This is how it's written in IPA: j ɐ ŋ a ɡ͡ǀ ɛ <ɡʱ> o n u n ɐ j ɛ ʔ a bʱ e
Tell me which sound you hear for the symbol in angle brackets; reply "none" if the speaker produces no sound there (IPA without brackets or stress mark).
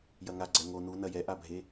ŋ